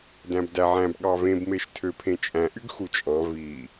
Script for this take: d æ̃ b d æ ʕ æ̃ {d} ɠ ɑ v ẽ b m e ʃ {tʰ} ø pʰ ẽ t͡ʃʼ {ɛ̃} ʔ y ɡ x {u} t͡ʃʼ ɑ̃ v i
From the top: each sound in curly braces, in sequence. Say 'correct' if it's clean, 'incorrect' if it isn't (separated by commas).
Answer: incorrect, correct, incorrect, correct